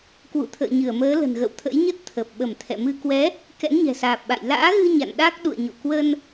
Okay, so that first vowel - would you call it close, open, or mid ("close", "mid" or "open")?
close